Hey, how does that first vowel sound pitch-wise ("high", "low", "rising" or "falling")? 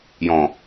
low